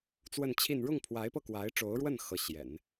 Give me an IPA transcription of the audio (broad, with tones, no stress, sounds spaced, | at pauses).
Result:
t͡s w ə˥˧ n t͡ɕʰ i˥˧ n ɻ ʊ˥˩ ŋ pʰ w a˧˥ ɪ̯ p ɤ˧ k w a˧˥ ɪ̯ ʈ͡ʂ o˧˥ ʊ̯ ɻ w ə˥˩ n x ɤ˧˥ ɕ j ɛ̰˨˩˦ n